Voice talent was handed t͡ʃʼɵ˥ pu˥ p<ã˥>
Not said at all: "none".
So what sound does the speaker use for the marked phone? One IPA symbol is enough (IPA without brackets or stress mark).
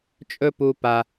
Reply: a˥